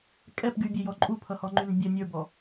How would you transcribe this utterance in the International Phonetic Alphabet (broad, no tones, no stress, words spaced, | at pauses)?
kʼɛpɡybʲejɔ ǃʼupʰʌhɔŋ͡ǃyn bʲə nʲə˞bɔ